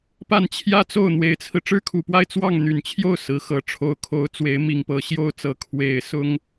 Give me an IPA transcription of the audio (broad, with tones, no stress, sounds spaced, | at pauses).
p a˥˧ n t͡ɕʰ j ä˥˧ t͡s o˥˩ ʊ̯ n̪ w e˧˥ ɪ̯ t͡sʰ ɹ̩˧ ʈ͡ʂ ɻ̩˥ kʰ u˨˩ p w a˥˧ ɪ̯ t͡s w ɑ˥˩ ŋ n̪ y˨˩ n t͡ɕʰ j o˥˩ ʊ̯ s ɹ̩˧˥ x ɤ˧˥ ʈ͡ʂʰ o˧˥ ʊ̯ kʰ o˧˥ ʊ̯ t͡s w e˧˥ ɪ̯ m i˨˩ ŋ p ɤ˧˥ ɕ j o˥˩ ʊ̯ t͡s ɤ˧˥ kʰ w e˨˩ ɪ̯ s ʊ˥ ŋ